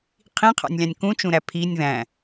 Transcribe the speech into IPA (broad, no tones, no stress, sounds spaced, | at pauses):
qʰ ĩ qʰ ɑ̰ nʲ lʲ ɑ̃ nʲ k ũ t͡ʃ ũ ɾ æ pʰ i nʲ ð æ̃